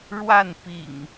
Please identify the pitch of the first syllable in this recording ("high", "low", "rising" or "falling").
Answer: falling